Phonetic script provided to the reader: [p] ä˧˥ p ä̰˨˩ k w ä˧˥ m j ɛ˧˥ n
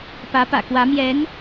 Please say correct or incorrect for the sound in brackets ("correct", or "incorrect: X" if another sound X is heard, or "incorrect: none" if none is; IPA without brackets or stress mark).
correct